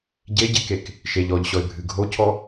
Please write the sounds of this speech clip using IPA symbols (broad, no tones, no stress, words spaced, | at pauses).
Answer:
ɟeɟekek | ʃeʎ ɔʎɕɔɪ̯bʱɨ ɡʱocʰɔ